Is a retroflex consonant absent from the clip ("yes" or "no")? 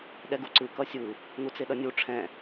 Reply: no